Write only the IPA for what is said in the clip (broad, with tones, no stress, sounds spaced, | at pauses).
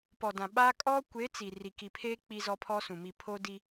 p ɔ˨ d ã˨ ɓ aː˦ kʼ ɔ˦ kʷ e˨˦ t͡s i˨ r i˨ k i˨ pʰ eː˦ k͡p i˦ z ɔ˦ pʰ ɔ˦ s ũ˨ m i˨ pʰ o˦ d i˦